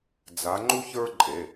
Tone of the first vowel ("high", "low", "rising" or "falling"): rising